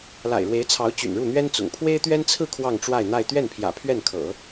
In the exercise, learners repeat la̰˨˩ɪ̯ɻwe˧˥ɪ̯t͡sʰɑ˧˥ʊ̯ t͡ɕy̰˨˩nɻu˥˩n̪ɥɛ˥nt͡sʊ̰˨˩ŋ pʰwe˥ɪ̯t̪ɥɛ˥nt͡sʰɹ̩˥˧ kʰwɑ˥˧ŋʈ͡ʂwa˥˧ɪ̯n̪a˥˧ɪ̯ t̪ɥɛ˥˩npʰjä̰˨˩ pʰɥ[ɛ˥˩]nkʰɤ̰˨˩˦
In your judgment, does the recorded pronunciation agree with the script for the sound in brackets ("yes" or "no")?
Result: yes